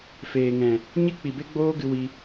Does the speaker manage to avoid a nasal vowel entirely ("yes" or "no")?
no